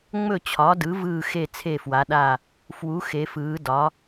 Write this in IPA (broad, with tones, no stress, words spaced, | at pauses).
ŋ͡mɵ˥˩ t͡ɕʰɒ˩˥dɯ˩˥ vɯː˥˩ xe˥˩ t͡sʰe˥˩fwa˩˥ɗa˥˩ | fwu˩˥ xe˩˥fɯː˩˥ dɒ˩˥